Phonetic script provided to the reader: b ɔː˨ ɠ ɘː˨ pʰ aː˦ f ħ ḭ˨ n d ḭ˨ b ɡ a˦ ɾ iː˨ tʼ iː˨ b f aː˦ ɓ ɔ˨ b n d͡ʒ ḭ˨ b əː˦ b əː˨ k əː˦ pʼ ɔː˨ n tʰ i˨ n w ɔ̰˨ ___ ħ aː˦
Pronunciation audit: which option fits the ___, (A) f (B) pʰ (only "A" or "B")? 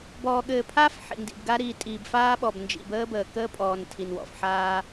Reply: A